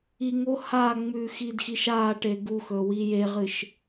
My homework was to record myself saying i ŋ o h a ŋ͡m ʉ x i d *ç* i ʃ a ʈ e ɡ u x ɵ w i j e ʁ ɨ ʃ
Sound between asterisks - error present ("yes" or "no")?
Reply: yes